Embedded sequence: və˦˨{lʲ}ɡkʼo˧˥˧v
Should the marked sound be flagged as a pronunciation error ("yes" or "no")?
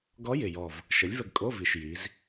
yes